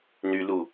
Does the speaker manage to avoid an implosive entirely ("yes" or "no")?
yes